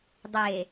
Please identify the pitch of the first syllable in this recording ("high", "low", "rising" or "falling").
low